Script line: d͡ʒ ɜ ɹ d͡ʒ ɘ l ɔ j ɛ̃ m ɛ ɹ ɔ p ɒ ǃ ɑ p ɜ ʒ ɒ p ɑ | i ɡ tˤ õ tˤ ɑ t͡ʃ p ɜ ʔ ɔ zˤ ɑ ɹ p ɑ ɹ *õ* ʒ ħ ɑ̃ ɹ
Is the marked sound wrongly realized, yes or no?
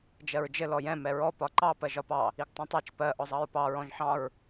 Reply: yes